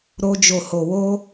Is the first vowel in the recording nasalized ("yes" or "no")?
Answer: no